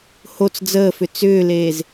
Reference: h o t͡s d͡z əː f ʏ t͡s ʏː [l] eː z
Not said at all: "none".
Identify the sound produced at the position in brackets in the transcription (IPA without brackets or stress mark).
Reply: l